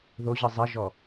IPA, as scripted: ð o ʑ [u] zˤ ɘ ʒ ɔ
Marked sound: incorrect: ɯ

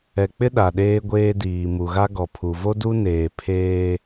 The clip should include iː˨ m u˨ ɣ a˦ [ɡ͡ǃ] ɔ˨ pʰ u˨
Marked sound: incorrect: ɡ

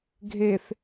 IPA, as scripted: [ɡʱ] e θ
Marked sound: correct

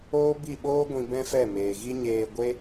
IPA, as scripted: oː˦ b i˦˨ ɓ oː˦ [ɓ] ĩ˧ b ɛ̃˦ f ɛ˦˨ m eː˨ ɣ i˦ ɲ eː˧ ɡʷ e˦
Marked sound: incorrect: ɡʷ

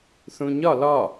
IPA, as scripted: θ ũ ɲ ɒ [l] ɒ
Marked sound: correct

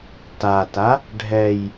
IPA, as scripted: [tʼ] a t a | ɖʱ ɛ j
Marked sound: incorrect: t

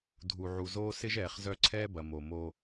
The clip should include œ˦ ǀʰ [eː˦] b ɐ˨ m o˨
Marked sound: incorrect: ɛː˦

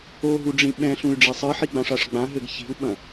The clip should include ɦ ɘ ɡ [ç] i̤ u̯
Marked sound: correct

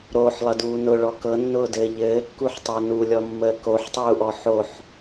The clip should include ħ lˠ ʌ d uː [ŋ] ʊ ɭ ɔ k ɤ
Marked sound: incorrect: n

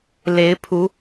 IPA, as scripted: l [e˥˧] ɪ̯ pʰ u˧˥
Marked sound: incorrect: e˧˥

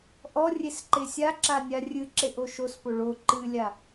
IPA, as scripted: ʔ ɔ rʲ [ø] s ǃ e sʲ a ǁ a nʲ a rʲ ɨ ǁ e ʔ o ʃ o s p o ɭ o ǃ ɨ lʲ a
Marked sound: incorrect: e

